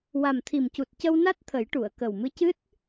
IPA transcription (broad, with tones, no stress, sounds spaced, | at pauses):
w a˨˩ m t̪ʰ i˨˩ m c u˨˩ t̚ c ə˧ w n a˦˥ t̚ t̪ʰ ə˨˩˦ j ʈ u˨˩˨ ə̯ k ə˨˩ w m ɨ˧˥ c ɨ˦˥ t̚